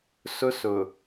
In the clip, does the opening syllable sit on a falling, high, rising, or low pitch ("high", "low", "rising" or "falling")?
high